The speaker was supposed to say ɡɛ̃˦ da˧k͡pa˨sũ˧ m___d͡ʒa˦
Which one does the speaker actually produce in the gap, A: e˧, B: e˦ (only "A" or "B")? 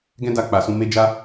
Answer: B